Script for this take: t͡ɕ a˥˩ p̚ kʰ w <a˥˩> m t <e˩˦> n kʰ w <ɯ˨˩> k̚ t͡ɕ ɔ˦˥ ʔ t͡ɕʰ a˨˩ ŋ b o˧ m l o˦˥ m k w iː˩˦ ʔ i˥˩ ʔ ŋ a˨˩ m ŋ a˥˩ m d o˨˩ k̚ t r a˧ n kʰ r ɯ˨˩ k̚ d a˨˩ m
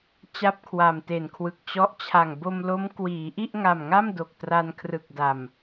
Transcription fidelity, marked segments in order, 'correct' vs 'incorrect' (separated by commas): incorrect, incorrect, correct